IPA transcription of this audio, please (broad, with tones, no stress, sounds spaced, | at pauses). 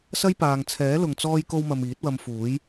s ɐ˥ j p aː˨ ŋ t͡sʰ ɛː˨˥ l ʊ˨ ŋ t͡s ɔː˥ j k o˥ w m ɐ˧ m iː˨˥ t̚ w ɐ˧ m f uː˨˥ j